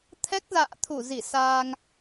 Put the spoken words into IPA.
t̪ʰɛ˦˥k̚za̰ː˧˨t̪ʰu˧˩zi˧˩ saː˧ŋ

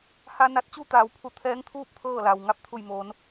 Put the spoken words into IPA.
ha˧ na˧t̚t͡ɕu˥˨t̪aː˩wpʰu˧˩ t̪ʰɛː˧˥ŋt̪ʰuː˥˨p̚ t̪ʰɤː˥˨la˩w ŋa˥˨p̚t̪ʰu˧˩jmoː˩˧n

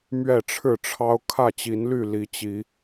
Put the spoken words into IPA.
mɥɛ˥˨ʈ͡ʂʰɻ̩˥˨ʈ͡ʂʰɑ˦ʊ̯ kʰä˥˨t͡ɕi˨˦nly˥˨ li˨˦t͡ɕi˨˦

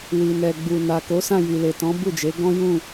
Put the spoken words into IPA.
wi˨nɛ˨ ɡ͡bu˨ na˨ko˨˦sã˦˨ ji˨le˨tɔ̃˨˦ bu˦˨d͡ʒe˨˦ ɡɔ̃˦jũ˦˨

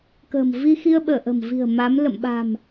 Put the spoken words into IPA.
kə̤ː˨˩mvi˧ xi˧ə̯ɓəː˧˩ʔə̤˨˩mvi̤˨˩ə̯ ma˨˦m lə̰˧˨mɓa̤˨˩m

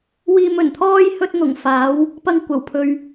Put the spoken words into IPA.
wiː˧mɵ˨˩nt̪ʰɔː˥j hɵ˥t̚ ŋʊ˨˩ŋ faː˨˥w | pɐ˧ŋ kʷɐ˨˩w pʰɵ˨ɥ

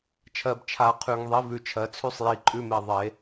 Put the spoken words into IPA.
t͡ʃʰɜ˨bt͡ʃʰa˨ qʰʉ˨ŋ ðˤi˨˦vʉ˨t͡ʃʰɜ˨t͡sʰʉ˦sˤ ji˧ǃʼʉ˦me˧ðˤe˨˦

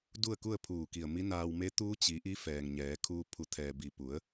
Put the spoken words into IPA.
du˥˨ə̯ku˥˨ə̯pʰuː˧˩ki˧˩ə̯ mi˧˥naː˧wme˧˥ t̪uː˧˥t͡ɕi˩˧ ʔi˧˥ fɛː˩ŋ ɲɛː˩˧kʰuː˧ pʰu˩˧t̪ʰɛː˩bi˩ pu˩˧ə̯

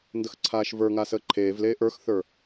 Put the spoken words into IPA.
ndəxǀʰaːʃvə˞ŋa səːǃʰeːvleː ʔə˞xθə˞

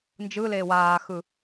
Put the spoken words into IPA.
nd͡ʒɯleː waːxɯ

